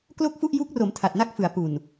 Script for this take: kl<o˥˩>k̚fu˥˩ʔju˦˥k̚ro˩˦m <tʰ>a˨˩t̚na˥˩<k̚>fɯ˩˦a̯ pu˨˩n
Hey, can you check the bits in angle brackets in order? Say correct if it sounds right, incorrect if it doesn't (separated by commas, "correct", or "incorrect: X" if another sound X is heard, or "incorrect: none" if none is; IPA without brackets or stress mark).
correct, correct, correct